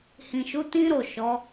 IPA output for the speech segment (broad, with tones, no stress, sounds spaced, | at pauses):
h ĩ˨ ʃ u˨˦ t ĩ˦ ɾ o˦˨ ʃ ɔ˨˦